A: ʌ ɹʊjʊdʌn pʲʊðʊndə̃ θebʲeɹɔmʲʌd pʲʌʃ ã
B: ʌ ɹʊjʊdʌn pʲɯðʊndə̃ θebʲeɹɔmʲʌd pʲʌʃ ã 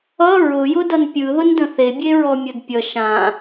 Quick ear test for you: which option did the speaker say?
B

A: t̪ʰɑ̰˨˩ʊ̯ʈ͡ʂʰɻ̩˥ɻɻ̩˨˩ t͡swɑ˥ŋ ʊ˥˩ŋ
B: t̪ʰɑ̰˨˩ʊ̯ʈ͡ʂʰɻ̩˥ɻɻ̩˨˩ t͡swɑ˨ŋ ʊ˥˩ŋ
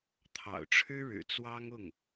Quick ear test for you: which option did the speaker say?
A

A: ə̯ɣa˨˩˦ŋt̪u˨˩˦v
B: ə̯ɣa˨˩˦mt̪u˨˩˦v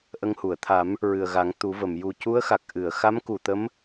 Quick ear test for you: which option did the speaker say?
A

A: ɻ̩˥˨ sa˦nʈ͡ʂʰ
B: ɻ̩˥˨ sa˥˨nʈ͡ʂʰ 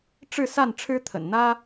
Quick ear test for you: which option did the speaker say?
B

